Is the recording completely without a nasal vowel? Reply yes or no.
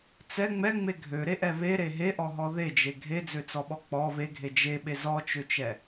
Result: yes